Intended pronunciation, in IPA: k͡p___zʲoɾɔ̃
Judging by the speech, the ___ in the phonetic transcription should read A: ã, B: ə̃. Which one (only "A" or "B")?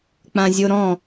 A